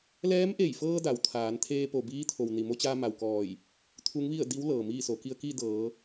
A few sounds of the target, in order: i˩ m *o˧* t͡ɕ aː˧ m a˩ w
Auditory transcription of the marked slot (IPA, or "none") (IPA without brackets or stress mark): o˧